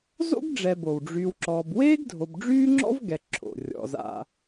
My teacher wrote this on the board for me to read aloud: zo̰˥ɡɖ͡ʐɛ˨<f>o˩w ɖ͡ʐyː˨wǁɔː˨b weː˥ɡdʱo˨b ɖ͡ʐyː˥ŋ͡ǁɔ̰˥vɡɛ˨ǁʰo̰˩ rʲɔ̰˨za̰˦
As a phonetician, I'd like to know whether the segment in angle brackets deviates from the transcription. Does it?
yes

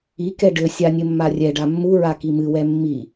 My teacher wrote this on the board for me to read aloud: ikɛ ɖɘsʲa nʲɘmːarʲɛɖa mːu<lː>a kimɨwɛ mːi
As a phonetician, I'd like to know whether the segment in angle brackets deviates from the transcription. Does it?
yes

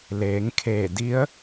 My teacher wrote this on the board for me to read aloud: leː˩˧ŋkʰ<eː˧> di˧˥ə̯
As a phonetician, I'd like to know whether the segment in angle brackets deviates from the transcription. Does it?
yes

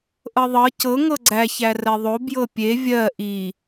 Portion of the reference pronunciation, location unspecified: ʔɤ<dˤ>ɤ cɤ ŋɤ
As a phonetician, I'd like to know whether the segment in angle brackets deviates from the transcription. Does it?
yes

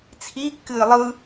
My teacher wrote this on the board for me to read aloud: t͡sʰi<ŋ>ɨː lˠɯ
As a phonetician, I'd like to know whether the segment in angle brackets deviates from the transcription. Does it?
yes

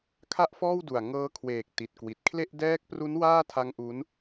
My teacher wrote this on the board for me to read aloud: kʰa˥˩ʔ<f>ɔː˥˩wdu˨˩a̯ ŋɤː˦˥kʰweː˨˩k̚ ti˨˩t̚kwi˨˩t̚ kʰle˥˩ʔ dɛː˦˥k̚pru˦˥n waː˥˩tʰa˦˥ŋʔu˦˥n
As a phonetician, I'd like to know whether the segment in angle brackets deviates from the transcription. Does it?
no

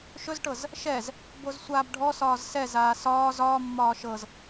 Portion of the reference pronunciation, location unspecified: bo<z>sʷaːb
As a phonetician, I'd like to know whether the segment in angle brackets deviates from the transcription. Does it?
no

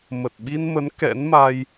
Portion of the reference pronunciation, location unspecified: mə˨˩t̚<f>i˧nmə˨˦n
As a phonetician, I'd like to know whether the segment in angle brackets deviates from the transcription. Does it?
yes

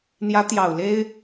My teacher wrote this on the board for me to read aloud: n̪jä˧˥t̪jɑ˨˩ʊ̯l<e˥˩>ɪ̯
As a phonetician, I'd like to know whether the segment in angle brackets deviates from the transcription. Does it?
yes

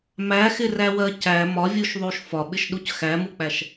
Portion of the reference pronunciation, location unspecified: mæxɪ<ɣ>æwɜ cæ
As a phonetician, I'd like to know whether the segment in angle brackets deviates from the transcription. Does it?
yes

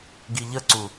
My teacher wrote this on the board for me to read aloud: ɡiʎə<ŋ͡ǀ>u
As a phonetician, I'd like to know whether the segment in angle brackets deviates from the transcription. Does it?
yes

